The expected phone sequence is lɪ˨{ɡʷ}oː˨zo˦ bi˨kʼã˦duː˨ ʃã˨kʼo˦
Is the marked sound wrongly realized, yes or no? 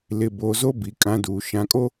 yes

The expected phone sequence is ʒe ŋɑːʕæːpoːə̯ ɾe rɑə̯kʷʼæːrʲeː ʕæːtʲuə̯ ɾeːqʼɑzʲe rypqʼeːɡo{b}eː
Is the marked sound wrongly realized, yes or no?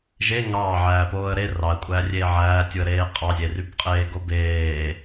no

